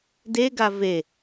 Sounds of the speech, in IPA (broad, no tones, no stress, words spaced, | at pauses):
deɡa ve